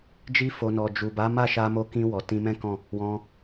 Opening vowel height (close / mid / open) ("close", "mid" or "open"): close